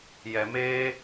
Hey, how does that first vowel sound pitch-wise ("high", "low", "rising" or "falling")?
low